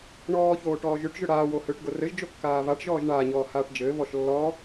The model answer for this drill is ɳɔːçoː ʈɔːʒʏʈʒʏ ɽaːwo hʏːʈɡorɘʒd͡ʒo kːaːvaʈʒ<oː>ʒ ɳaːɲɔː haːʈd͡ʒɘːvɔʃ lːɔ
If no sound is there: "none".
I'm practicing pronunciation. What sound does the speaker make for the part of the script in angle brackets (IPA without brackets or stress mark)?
ɔː